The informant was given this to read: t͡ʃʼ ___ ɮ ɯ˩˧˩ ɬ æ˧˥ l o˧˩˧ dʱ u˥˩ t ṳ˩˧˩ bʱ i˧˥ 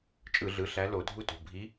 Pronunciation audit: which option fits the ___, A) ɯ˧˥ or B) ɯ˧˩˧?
B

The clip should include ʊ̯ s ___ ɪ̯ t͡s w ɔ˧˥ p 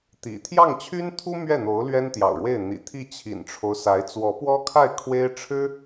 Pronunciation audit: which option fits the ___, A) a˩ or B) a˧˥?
B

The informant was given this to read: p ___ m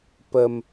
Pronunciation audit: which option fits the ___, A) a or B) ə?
B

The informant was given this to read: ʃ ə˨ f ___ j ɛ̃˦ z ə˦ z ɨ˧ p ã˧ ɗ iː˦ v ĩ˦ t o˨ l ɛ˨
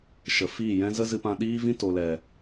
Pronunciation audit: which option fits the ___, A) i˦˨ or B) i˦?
A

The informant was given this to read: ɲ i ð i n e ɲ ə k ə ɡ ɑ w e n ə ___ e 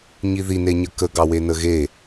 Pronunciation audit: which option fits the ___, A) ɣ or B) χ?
A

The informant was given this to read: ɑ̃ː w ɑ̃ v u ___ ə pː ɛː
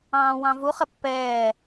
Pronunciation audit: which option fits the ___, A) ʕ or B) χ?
B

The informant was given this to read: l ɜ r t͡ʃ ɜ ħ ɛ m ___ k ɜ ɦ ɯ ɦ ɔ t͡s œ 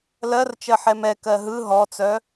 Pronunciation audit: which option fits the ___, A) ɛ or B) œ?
A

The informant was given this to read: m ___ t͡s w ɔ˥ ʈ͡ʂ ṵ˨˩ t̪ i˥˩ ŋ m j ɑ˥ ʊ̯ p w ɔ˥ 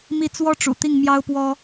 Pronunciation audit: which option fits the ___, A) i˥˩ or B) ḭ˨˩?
A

